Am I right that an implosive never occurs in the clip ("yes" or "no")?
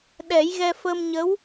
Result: no